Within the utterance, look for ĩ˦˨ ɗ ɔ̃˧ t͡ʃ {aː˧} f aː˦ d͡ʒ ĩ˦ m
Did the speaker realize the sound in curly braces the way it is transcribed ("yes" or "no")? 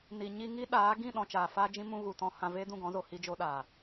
no